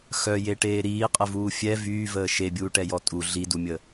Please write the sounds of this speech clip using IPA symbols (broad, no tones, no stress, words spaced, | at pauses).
xœjeʈeː ɾiːqʼəvuː fʲɛ vyːvəː ʃebʲuːʈɛjɔ tʼu ɮidumʲə